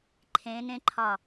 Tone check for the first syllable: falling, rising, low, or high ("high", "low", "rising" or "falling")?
rising